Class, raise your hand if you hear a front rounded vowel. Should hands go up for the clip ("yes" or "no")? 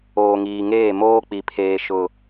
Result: no